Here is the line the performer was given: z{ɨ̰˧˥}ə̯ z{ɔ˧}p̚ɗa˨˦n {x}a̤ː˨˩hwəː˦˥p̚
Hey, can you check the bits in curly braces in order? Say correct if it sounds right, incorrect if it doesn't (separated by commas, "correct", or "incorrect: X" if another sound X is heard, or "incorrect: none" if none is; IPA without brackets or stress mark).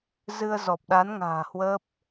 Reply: incorrect: ɨ˧, incorrect: ɔ˨˩, incorrect: ŋ